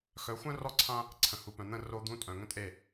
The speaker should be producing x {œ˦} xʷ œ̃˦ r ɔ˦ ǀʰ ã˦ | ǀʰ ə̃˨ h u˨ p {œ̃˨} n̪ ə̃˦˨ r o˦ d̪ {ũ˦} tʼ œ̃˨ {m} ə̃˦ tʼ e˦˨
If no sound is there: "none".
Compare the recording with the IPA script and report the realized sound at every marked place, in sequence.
œ˨˦, œ̃˨, ũ˦, ŋ

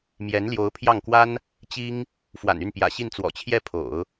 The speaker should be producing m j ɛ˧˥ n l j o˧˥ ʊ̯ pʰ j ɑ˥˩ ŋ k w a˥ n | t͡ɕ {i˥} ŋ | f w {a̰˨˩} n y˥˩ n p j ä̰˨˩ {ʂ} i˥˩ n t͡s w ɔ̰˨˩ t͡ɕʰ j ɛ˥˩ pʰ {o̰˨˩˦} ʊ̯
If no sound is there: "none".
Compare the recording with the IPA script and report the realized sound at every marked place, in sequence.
i˥, a̰˨˩, ɕ, o̰˨˩˦

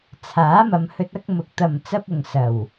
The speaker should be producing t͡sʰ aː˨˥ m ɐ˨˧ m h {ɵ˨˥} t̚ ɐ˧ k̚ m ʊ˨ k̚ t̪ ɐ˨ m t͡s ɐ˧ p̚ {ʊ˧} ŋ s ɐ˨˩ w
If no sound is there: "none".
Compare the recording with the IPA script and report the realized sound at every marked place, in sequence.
ɵ˧, ʊ˧

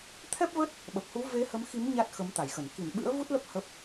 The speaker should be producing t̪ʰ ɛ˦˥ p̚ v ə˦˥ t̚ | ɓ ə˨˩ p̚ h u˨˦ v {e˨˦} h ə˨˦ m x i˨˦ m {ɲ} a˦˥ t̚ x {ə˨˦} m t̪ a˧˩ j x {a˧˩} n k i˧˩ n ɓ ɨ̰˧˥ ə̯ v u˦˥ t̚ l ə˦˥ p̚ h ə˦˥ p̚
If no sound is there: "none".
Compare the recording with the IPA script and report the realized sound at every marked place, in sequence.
e˨˦, ɲ, ə˨˦, ə˧˩

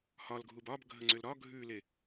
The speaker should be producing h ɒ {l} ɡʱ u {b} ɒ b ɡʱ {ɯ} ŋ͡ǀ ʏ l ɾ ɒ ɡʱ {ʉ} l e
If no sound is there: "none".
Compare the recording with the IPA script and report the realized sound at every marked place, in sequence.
l, b, ə, ʉ

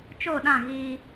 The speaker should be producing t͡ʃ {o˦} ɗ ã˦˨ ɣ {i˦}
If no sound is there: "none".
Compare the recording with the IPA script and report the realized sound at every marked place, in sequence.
o˦˨, iː˦

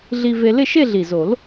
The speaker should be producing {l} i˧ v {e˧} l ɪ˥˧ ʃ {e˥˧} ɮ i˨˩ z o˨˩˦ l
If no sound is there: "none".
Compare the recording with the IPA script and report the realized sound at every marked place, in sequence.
ɮ, e˧, e˥˧

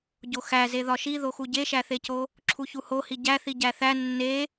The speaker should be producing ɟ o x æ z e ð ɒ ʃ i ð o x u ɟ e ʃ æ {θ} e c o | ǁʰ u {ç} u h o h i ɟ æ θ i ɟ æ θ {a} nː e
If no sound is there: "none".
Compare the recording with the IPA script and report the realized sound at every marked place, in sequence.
θ, ç, æ

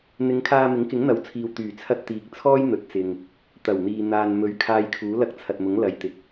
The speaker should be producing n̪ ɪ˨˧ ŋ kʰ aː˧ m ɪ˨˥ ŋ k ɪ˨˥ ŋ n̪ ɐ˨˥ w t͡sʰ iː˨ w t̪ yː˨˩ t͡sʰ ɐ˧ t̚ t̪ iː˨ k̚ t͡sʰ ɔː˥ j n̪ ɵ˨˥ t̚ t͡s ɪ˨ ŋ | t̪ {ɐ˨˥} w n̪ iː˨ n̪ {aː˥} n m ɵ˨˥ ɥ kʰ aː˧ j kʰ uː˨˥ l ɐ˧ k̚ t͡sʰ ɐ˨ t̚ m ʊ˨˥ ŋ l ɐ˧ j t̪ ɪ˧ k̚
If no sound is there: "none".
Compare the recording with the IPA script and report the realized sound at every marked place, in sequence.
ɐ˨˩, aː˨

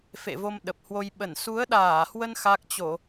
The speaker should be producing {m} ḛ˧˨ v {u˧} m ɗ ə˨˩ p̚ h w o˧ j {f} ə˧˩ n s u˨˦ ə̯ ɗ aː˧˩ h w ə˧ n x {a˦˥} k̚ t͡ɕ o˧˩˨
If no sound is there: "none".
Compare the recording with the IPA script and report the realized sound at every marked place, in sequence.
f, o˧, ɓ, a˦˥

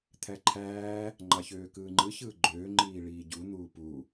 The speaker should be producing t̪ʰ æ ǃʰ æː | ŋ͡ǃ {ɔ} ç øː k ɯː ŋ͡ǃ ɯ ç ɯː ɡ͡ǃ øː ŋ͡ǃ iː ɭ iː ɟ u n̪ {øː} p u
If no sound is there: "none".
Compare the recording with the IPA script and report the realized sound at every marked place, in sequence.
ɑ, uː

